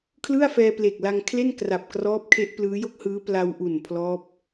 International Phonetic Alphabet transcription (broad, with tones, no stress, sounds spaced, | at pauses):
kʰ l ɯ˥˩ a̯ f ɛː˧ p l e˨˩ k̚ l a˧ ŋ kʰ l e˥˩ n k r a˨˩ p̚ k r ɔː˦˥ p̚ kʰ e˦˥ ʔ p l ɯː˦˥ j o˥˩ k̚ h ɯː˦˥ p l a˧ w ʔ u˨˩ n pʰ l ɔː˦˥ p̚